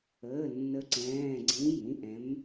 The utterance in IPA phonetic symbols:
əː˩˧˩ nː ə˨˥ ǀ ɛ̃ː˩˧˩ ɡ͡ǀ ĩ˨˥ j ĩ˩˧˩ ʔ ɛ̃˨˥ m

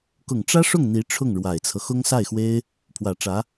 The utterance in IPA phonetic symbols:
k ʊ˨˩ ŋ ʈ͡ʂ ä˥ ʂ ʊ˥˩ ŋ n̪ i˧˥ ʈ͡ʂʰ ʊ˥˩ ŋ ɻ w a˨˩ ɪ̯ t͡sʰ ɤ˦ x ʊ˥ ŋ s a˥˩ ɪ̯ x w e˥ ɪ̯ | pʰ w ä˨˩ ʈ͡ʂ ä˧˥

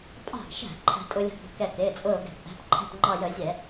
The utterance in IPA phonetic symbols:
pʼ ɑ̤˧˩ ɡ ʃ æ̤˧˩˧ ǃʰ æ̤˧ tʼ ʊ˧ lʲ ə̤˧ ɡ b ə̤˧˩ k ɛ˧˩ k ɪː˩˧˩ t͡sʼ ʊː˧˩ ɡ ɛ̤˧˩˧ p ʔ æ̤˩˧˩ p ǃʰ ɛ̤˧˩ p ŋ͡ǃ ɑ˧˩ j ə˧˩˧ zʲ ɛ˧˩˧

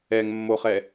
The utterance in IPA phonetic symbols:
ɛ ŋ mː o χ ɛ

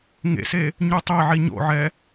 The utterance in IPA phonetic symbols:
ŋ ḛ s e | ɲ u tˤ e ʕ i ɲ o̰ ʕ ɛ

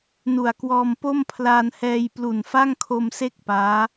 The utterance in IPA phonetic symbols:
n u˨˩ a̯ k w ɔː˧ m p o˥˩ m pʰ l aː˧ n h ɛː˧ j p l u˨˩ n f a˥˩ ŋ kʰ o˧ m s e˥˩ k̚ p aː˦˥

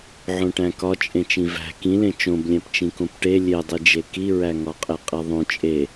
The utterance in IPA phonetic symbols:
ʕ õ ʈ æ̃ k ɒ t͡ʃʼ ẽ t͡ʃ ĩ v æ̤ k ĩ l ẽ t͡ʃ õ b lʲ æ̃ p t͡ʃ ĩ k õ p ʈ e lʲ e dˤ i d͡ʒ e k i ɹ æ ŋ ɒ qʼ e qʼ e ðˤ õ t͡ʃʼ e

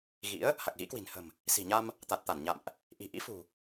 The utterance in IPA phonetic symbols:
ɣ ḭ˧˥ ə̯ | h a˨˩ k̚ ɣ ḭ˧˥ k w i̤˨˩ n h ə̤˨˩ m | s i̤˨˩ ɲ a˧ m | t̪ a˨˩ t̚ t̪ a˧˩ n ɲ a̰˧˨ m ʔ | ʔ i̤˨˩ ʔ ḭ˧˥ f ṳ˨˩

